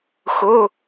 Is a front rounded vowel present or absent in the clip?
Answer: absent